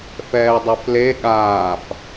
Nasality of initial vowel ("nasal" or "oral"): oral